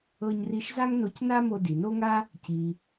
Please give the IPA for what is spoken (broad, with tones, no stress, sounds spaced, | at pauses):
ɤ˧ ɲ r i˧ ʃ z a˥ ŋ n o˧ c n a˥ m o˧ d i˩ n o˥ ŋ a˥ | c i˩